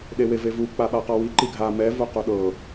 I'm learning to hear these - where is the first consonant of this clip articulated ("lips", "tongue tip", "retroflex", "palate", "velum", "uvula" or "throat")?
tongue tip